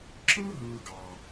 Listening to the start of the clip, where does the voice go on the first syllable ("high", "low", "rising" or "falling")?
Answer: high